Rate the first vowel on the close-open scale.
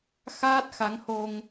open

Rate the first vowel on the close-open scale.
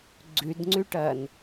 close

